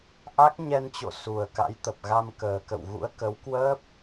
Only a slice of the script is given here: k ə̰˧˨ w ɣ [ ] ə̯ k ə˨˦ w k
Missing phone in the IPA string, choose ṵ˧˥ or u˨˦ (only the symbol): ṵ˧˥